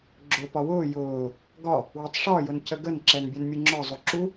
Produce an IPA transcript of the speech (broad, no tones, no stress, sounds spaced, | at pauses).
ɡ͡ǁ ʊ p ɒ w ʊː j ʊː | ɡ ɒ | w ʊ tˤ ʂ ɒ j ʊ n c ə ɡ ə n ǁ ɛ n bʲ ɛ n mʲ u ŋ͡ǁ ɒ zˤ u ǁ u